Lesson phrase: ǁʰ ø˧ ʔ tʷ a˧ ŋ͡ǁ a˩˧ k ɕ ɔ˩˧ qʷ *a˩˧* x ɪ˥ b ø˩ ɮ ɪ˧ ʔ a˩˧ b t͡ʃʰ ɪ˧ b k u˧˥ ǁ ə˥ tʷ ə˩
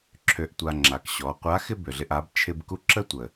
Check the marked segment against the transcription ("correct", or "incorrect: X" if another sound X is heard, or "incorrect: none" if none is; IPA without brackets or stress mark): incorrect: a˧˥